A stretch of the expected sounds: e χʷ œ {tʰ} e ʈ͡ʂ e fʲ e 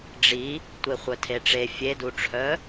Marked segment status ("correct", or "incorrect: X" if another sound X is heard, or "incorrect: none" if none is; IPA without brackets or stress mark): correct